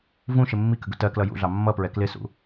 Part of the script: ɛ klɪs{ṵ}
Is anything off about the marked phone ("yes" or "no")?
no